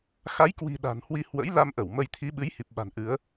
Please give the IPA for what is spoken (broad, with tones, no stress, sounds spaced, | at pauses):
x a˨˦ j k w i̤˨˩ ɗ a̤˨˩ n h w i˧ h w ə̰˧˥ j l a˧ m ʔ ə˧˩ w m ə˧ j t̪ʰ i˨˦ ɓ ɨ˨˦ j h i˨˩ p̚ ɓ a̤˨˩ n ʔ ɨ˨˦ ə̯